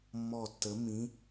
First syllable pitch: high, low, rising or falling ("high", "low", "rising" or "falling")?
falling